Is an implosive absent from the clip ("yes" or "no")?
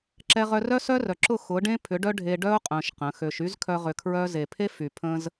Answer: yes